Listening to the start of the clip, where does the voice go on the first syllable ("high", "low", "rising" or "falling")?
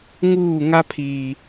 falling